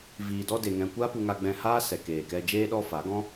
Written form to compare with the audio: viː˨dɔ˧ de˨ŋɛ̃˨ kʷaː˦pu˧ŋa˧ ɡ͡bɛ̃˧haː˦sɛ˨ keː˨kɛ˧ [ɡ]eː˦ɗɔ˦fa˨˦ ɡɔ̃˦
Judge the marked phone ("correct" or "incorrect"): incorrect